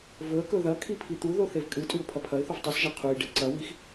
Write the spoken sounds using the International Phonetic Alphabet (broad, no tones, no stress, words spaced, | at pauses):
vɵə̯kɵ ðɐ kʰipʰit̪uðo θevkʼɨtʼʉʊ̯ pʰɐpʰɐɪ̯θuv tˤɨsʒɐ qʰuj ɖeǀɐwix